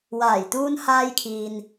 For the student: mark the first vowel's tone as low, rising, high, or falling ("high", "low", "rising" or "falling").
low